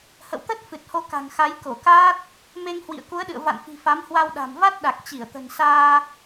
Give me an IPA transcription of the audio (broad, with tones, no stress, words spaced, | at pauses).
hə̰˧˨wt̪ə˦˥t̚ fɨ˨˩t̚ho˧ka̤˨˩ŋxa˨˦j ko˧˩kaː˦˥t̚ | me˧ŋ hwḭ˧˨ə̯ku˨˦ə̯ɗɨ̰˧˨ə̯ va̰˧˨nfi̤˨˩ fa˨˦mhwa˧wɗa̤˨˩m va˦˥t̚ɗa˨˩k̚ t͡ɕi˧˩ə̯t̪ə̤˨˩n saː˧